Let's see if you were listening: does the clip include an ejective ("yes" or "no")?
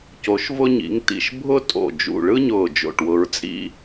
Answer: yes